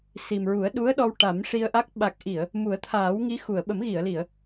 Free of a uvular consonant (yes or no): yes